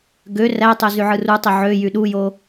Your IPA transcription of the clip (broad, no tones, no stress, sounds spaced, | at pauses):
ɡ ø r æ tˤ ø z y ʕ ɯ r u tˤ i ʕ ø j y ɗ u j o